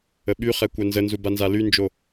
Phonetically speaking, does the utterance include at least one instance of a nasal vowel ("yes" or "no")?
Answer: no